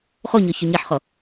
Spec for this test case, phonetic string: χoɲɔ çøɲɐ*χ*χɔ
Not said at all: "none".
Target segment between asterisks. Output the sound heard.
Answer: ħ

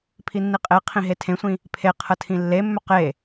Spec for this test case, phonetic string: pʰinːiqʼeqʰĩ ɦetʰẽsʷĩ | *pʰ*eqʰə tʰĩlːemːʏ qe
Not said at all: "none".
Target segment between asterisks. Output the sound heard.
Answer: pʰ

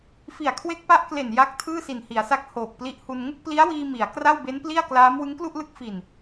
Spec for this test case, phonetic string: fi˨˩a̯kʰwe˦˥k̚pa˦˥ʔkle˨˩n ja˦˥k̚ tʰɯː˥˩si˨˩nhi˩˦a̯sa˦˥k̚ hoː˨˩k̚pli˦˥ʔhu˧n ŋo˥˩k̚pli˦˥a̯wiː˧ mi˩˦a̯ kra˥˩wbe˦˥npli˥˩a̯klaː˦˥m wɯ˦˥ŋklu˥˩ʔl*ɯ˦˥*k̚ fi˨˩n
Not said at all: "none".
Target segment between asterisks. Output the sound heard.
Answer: ɯ˦˥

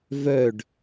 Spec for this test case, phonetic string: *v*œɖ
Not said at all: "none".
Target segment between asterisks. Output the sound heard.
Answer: v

